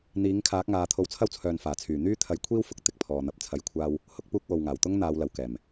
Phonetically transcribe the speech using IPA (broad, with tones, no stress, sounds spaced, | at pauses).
n̪ iː˨˥ ŋ kʰ aː˨˥ k̚ ŋ aː˨˧ t̪ʰ o˧ w t͡sʰ ɐ˥ w t͡sʰ œː˨ n f aː˨˩ t͡sʰ yː˨˩ n̪ yː˥ t̪ʰ ɐ˨˥ j kʷʰ iː˥ w f ʊ˨ k̚ t̪ ɪ˨ k̚ pʰ ɔː˨ n̪ ɐ˨ p̚ t͡sʰ ɐ˧ j kʷʰ aː˥ w | h ʊ˥ k̚ p uː˥ k̚ w o˨ w ŋ aː˨˩ w t̪ ʊ˥ ŋ n̪ aː˨˧ w l ɐ˨˩ w k ɛː˨˩ m